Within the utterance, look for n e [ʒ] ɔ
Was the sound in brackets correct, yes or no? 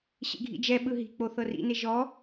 yes